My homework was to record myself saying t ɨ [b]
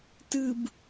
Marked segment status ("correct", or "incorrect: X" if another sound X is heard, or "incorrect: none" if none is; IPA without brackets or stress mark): correct